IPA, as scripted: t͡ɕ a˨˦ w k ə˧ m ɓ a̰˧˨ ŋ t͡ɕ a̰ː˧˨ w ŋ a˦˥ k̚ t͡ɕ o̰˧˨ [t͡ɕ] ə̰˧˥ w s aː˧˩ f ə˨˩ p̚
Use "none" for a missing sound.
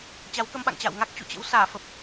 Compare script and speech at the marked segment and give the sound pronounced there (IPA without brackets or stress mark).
t͡ɕ